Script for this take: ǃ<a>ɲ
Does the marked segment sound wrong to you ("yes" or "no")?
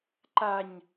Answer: no